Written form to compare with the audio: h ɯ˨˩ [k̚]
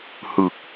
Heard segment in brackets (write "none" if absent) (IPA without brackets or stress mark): k̚